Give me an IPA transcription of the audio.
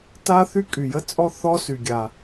t a˥ θ y˥ kʼ y˩ j ə˥ t͡sʼ ɔ˥ θ ɔ˥ s y˩ ɡʲ a˩

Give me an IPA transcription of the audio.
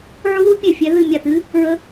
ʕ u˦˥ ð u˦˥ pʲ ɛ˦˨ fʲ ɛ˦˥ ð ɨ˦˨ mʲ a˦˨ t ɨ˦˥ | ɹ ə˦˥

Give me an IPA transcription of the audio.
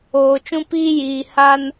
oː˨ t͡ʃ ũ˦ p iː˦ j iː˨ h a˦ n

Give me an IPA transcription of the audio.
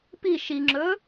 p i ʃ i ŋ͡ǁ ɵ

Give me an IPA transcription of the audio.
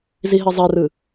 z i ɦ i zˤ ɛ r ɯ

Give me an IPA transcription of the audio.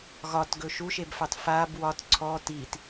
ɣ ɒ t ɡ ɵ ʃ u ʃ e b f ɑ t f a b w ɒ t ǀʰ ɔ t i t

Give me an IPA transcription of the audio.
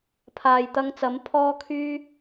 pʰ aː˨ j t̪ ɐ˧ ŋ t͡s ɐ˨˥ m pʰ ɔː˥ kʰ yː˥

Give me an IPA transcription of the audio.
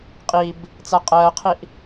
qʼ i b | t͡s a qʼ ɜː qʰ i ʔ

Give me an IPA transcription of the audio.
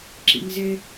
ǁ ḭ ŋ z e

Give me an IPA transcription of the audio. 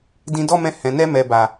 d ĩ˧ d ɔ˦ m ɛ̃˧ h ɛ̃˨ n ɛ˧ m ɛ˨ b a˨

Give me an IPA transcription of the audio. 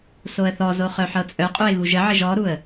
s o ə̯ θ ɔ z o χ œ ħ ɤ t͡sʼ œ qʼ u ɪ̯ ɣ u ʒ ə ʕ ɘ ʒ ɔ ɾ u ə̯

